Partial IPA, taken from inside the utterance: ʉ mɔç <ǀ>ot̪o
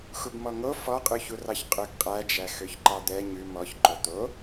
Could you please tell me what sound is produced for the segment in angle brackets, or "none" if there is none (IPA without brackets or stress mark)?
ǃ